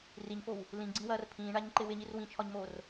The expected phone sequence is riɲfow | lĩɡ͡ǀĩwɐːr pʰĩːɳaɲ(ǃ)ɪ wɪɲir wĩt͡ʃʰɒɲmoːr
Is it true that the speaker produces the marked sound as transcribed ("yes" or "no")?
yes